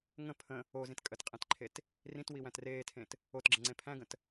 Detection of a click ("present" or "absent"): present